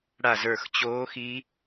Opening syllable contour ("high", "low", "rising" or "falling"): falling